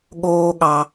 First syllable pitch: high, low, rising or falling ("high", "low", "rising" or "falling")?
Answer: high